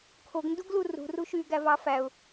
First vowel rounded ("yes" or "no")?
yes